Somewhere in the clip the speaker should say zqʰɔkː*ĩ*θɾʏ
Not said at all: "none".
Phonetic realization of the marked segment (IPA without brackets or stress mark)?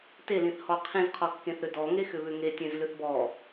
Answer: ẽ